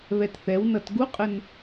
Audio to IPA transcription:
β ɛ t θ ɛ w n ʌ t ɡ u qʼ ə n

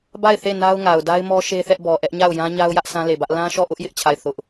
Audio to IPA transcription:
b a˦˨ ɪ̯ θ e˦˨ n a˦ ʊ̯ ŋ a˨ ʊ̯ d a˦ ɪ̯ m ɔ˦ ʃ e˦ θ ɛ˦ ʔ b ɔ˨ ʔ ɛ˦ ʔ ɲ a˦˨ ʊ̯ j ã˦ ɲ a˦ ʊ̯ j ä˦ ʔ s ã˦ l e˨ b ä˦ ʔ l ã˦ ʃ ɔ˦˨ ʔ ʊ˦ ʔ j ɪ˦ ʔ t͡ɕʰ a˦˨ ɪ̯ θ ʊ˦ ʔ

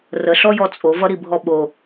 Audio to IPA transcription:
r ə ɬ ɔ j ɔ t͡sʼ o v ʌ ɾ i bʱ ɔ ɓ o

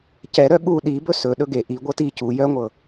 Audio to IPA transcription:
c ɛ ɾ œ ɠ u ɗ i b ɵ s ɵ ɗ ɵ ɡ e ʔ i ɡʷ ɤ t i c u j œ ŋʷ ɤ

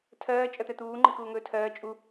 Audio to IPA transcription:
tʰ ɜː t͡ʃʼ ɜ t̪ ɛ t̪ uː ŋ͡ǃ i k uː ŋ ɵː tʰ ɜː t͡ʃʼ u

